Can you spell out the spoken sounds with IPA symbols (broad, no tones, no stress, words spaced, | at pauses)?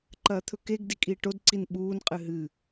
ǃɐːt̪ʰɵkeɡ dikʼiːʈod ǀinɓuːn qʼɨɦɨ